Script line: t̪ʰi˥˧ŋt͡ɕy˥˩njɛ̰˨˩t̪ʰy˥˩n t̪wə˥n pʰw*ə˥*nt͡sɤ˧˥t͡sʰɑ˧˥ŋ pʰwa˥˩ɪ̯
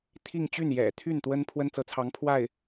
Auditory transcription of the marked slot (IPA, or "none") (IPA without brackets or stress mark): ə˥